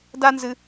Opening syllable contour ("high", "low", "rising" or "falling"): high